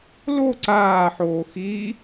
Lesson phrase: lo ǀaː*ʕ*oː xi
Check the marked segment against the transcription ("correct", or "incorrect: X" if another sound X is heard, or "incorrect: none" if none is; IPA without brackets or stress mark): incorrect: ħ